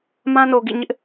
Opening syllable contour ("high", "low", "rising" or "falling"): high